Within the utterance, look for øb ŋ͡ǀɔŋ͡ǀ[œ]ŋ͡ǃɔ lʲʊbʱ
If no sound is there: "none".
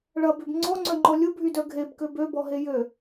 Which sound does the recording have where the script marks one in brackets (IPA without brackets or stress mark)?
œ